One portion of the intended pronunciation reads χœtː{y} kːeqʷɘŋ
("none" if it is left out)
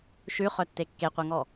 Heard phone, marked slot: e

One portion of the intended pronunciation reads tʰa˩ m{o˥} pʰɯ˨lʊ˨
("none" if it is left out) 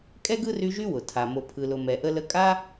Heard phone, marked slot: o˨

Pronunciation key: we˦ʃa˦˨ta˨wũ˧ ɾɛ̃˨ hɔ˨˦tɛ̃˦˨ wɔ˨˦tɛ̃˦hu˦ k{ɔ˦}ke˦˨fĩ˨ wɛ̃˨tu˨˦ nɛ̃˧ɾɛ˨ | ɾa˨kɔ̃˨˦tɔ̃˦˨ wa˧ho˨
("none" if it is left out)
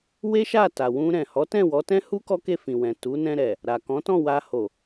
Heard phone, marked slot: ɔ˦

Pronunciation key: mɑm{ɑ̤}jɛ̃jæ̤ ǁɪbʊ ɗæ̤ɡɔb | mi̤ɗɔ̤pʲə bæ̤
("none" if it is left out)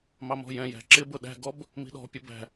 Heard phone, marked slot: ɔ̤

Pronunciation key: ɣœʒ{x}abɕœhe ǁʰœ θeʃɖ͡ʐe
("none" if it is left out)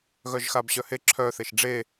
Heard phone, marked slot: x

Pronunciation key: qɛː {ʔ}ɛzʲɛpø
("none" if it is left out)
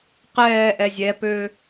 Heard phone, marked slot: ʔ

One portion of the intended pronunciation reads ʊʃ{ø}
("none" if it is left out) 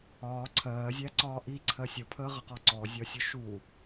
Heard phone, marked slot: u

